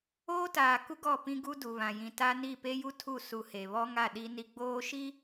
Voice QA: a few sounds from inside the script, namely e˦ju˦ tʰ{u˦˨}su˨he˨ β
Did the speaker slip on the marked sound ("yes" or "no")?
no